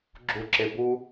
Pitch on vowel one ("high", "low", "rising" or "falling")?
high